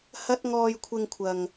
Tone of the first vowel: high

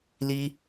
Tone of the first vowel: high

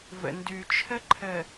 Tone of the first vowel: low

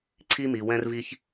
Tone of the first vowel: high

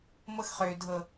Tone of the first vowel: high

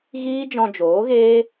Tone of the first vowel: high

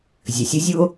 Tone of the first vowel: low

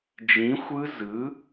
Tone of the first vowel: rising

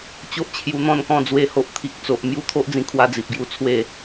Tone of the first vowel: high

